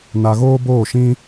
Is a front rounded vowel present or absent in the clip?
absent